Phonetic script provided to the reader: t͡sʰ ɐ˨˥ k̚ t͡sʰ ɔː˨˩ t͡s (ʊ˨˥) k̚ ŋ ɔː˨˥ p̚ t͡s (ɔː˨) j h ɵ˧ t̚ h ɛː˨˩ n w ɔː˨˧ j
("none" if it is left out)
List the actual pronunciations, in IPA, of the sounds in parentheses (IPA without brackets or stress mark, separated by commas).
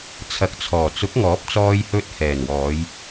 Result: ʊ˨˥, ɔː˧